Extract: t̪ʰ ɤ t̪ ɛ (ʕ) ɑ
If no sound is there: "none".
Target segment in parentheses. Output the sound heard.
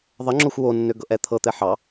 ħ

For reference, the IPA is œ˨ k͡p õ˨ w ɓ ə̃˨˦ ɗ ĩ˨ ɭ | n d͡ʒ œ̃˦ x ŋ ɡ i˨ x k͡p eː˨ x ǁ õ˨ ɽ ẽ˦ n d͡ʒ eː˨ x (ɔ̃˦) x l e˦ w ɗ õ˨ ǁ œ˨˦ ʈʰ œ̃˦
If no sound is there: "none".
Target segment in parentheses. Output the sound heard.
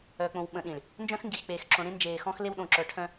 ɔ̃˦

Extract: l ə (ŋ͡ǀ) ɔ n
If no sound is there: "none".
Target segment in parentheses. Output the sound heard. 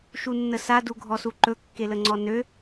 ŋ͡ǀ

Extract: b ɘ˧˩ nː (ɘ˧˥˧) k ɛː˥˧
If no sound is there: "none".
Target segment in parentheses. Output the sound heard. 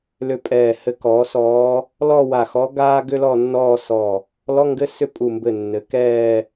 ɘ˩˥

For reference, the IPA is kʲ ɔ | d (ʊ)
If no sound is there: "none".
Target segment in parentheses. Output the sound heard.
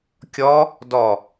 ɔ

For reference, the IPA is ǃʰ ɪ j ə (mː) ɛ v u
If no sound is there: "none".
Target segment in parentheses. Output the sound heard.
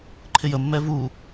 mː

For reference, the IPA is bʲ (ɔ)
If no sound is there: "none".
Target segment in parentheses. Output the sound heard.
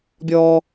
ɔ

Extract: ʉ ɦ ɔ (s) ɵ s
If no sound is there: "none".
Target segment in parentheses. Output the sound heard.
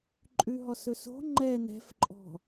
s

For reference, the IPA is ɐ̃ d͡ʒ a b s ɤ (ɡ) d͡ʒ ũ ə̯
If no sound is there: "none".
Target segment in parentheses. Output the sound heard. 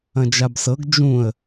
ɡ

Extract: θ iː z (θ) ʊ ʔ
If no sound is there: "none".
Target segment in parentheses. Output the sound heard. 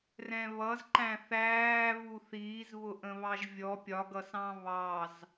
β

